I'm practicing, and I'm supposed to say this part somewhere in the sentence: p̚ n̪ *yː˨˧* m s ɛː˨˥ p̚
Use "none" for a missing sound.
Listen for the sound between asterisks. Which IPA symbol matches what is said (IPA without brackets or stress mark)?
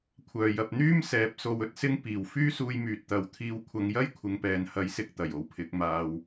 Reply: yː˥